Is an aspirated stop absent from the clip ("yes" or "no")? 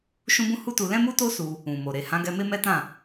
yes